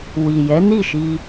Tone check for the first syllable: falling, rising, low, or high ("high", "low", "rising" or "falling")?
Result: low